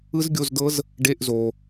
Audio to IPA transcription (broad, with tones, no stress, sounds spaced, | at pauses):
ɯ˦˥ z ɡʲ o˧˥˧ z d ɤ˦˥ z | ɖ e˧˥˧ ʔ z o˨